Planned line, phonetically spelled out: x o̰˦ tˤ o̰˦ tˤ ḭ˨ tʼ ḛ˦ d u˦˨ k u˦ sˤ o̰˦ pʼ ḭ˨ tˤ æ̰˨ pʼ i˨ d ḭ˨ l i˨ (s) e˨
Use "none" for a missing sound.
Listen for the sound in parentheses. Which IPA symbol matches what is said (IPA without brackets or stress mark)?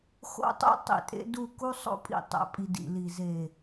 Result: z